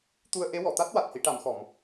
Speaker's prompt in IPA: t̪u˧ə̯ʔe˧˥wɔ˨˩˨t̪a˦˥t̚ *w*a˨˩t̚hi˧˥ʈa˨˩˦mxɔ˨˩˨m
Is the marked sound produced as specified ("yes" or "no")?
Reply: yes